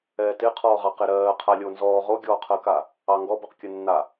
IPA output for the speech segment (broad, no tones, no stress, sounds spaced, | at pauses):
ɛː t ɪ qʰ ɔː ʁ ɑ q e ɾ ɜː qʰ a lʲ o n z ɔː ʁ o ɡʲ ɔː qʰ ɜ k a | ɑ ŋ ɡ ɔ b ɜ q kʲ ɜ nː a